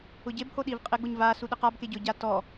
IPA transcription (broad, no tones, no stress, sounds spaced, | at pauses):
ʊ ɟ e b h o ɗ i v qʼ ɪ ɡ͡b ʊ ɲ v a s u ɗ ɪ q a b k e ɟ ʊ ɟ a t ɔ